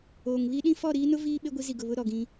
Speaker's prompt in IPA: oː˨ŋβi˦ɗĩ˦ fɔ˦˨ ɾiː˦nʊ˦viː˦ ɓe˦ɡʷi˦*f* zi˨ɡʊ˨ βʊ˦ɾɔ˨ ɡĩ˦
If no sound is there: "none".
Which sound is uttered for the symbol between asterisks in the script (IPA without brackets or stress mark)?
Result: none